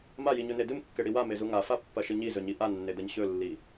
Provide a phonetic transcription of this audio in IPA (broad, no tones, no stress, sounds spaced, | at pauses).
m a j i ɲ ɵ n e d ɨ m kː e ɽ i w a m e z u ŋ a f a pː ɐ ʃ ɨ ɲ i z ɵ ɲ i ʔ a nː e d ɐ ɲ ɕ ɵ lː i